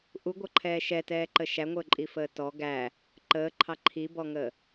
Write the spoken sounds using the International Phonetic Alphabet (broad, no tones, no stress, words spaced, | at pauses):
ʔuɡʷʌǃʰɛː ʃɛtɛːǃə ʃæŋʷəːǃʼifəː tɔ ɡæ | ǃəːǃʰɑ ǃʰibɔŋəː